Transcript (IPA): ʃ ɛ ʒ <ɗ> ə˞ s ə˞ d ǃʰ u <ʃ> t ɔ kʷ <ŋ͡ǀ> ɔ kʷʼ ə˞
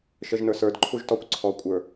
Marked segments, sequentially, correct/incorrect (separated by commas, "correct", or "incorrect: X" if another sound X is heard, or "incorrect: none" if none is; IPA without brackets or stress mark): incorrect: n, incorrect: ʒ, incorrect: ǀʰ